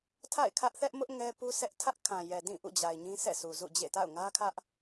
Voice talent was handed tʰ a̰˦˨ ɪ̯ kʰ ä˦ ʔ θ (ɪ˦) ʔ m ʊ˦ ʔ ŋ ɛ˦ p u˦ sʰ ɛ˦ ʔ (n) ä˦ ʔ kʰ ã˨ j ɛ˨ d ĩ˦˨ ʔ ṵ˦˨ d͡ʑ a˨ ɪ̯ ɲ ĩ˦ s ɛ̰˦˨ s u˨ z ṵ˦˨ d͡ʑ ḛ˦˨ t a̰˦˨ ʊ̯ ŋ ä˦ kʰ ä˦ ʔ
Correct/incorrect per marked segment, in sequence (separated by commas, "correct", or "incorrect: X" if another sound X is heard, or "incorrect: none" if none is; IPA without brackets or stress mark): incorrect: ɛ˦, incorrect: tʰ